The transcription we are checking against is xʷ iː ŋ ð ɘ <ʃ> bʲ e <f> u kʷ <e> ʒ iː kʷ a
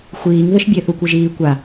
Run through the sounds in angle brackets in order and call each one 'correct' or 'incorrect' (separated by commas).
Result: correct, incorrect, incorrect